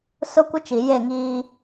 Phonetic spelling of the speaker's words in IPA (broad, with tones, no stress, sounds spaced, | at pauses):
s ʊ˦ kʷ ɪ˦ t͡ʃ i˨ j e˦˨ ŋ iː˦